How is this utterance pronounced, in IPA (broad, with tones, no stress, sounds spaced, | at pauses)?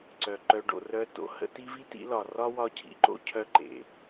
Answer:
ǀ œ˨ ǃ œ˧ ɖ o̰˨ r œ˧ t o̰˧ h ə̰˧ t i˦ v i˦ t ḭ˧ l ɒ˨ r ɒ˦ w ɒ˦ cʰ ḭ˧ ǃ o̰˦ cʰ œ˦ ǃ ḛ˨